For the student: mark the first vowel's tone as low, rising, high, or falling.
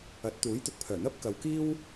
rising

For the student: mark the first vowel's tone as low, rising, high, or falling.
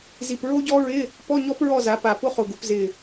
low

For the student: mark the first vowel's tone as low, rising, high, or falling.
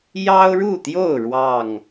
high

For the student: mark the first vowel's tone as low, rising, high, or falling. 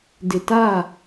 low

